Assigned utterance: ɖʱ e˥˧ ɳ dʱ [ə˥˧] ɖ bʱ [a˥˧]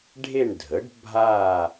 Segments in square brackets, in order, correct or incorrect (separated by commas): incorrect, correct